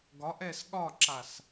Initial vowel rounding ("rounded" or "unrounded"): rounded